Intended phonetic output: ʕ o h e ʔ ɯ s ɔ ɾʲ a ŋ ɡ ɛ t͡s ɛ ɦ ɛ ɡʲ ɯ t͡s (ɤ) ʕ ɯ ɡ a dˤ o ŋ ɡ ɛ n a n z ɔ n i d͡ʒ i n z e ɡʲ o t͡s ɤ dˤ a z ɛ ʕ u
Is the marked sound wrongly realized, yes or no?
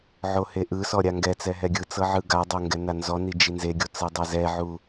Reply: no